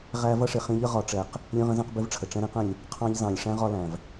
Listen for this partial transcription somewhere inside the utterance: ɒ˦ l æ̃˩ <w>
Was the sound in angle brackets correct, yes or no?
no